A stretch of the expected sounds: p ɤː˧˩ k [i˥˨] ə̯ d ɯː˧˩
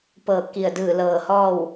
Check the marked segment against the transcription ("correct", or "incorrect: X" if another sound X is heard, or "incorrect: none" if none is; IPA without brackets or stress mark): incorrect: i˧˩